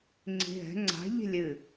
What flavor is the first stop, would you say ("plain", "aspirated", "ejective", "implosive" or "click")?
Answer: click